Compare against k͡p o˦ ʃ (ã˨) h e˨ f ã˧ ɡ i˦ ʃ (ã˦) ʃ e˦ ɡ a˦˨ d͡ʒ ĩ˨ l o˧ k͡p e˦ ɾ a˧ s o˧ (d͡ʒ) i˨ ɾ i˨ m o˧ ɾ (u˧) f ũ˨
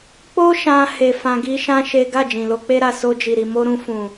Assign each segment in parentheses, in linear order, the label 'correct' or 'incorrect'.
incorrect: ã˧, correct, correct, incorrect: ũ˧

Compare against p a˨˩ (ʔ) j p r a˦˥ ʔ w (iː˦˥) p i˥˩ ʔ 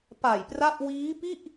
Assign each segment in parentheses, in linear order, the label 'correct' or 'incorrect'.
incorrect: none, correct

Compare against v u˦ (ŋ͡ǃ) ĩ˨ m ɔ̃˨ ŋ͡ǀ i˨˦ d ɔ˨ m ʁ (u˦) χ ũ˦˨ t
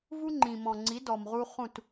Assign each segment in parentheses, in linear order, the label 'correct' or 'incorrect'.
correct, correct

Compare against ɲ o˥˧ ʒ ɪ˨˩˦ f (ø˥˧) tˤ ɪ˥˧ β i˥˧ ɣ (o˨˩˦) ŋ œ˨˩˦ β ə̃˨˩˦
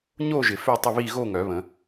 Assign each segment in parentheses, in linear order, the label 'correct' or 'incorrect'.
correct, incorrect: o˥˧

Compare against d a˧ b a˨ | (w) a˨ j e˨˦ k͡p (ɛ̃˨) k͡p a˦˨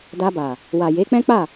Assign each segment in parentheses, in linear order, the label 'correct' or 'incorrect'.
correct, incorrect: ɛ̃˦

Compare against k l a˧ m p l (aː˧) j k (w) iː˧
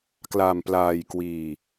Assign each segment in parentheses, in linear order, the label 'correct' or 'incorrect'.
correct, correct

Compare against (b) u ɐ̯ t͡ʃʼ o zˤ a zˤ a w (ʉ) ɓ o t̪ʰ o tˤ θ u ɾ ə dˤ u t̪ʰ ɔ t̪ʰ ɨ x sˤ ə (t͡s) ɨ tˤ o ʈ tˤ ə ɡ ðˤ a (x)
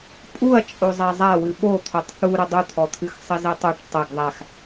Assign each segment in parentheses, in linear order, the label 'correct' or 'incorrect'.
incorrect: pʼ, incorrect: ɨ, incorrect: z, correct

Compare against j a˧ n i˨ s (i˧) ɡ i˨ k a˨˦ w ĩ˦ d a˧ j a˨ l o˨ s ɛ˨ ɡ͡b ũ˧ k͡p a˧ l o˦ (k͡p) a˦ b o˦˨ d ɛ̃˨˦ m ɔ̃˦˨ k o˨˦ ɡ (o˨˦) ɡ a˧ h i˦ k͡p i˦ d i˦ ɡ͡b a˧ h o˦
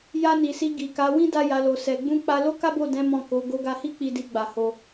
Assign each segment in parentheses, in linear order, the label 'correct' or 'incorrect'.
correct, incorrect: k, incorrect: o˧

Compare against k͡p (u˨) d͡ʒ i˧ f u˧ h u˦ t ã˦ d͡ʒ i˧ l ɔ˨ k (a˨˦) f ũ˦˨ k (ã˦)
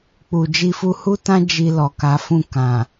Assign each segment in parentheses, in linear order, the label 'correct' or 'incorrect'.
correct, correct, incorrect: ã˨

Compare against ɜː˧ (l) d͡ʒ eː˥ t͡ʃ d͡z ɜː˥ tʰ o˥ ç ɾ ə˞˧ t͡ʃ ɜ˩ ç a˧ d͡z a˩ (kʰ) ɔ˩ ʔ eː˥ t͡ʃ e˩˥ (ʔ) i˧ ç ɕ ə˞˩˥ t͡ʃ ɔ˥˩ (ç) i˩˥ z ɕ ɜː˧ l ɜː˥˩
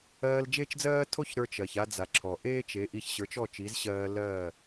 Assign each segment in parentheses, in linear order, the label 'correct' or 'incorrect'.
correct, incorrect: ǁʰ, correct, incorrect: t͡ʃ

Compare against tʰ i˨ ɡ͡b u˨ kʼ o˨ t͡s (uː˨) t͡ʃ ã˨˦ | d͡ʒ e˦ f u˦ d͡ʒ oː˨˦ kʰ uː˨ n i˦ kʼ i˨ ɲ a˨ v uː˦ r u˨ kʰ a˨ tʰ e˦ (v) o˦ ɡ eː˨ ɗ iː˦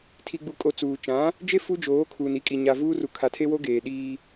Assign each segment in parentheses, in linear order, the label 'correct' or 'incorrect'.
correct, incorrect: w

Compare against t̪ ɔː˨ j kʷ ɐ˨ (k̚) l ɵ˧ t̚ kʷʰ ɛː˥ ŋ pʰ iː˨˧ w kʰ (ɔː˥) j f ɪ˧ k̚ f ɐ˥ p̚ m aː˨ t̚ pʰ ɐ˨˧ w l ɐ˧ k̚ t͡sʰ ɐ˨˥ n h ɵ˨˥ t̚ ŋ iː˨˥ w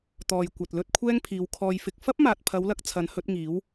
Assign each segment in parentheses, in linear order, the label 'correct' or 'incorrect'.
incorrect: t̚, incorrect: ɔː˧

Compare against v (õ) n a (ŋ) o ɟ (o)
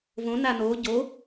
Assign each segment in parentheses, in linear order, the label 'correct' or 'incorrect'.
correct, incorrect: n, correct

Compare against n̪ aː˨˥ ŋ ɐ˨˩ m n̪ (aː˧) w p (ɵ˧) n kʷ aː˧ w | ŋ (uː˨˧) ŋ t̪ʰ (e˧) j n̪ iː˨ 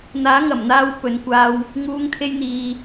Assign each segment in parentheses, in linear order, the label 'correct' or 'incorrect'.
correct, incorrect: ɵ˨˧, correct, correct

